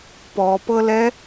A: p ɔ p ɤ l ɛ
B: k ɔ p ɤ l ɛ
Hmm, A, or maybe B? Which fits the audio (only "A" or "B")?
A